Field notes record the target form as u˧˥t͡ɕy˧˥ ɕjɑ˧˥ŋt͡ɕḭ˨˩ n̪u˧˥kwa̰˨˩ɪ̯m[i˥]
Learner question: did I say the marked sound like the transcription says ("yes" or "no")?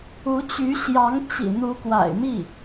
no